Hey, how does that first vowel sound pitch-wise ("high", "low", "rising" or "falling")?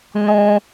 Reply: high